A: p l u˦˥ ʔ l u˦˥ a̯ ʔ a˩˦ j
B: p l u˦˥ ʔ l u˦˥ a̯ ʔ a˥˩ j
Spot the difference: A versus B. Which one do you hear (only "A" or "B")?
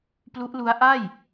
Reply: B